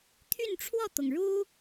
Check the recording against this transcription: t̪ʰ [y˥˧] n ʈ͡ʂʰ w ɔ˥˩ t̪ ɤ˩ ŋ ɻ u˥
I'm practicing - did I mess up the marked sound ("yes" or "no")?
no